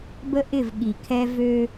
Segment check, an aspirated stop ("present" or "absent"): present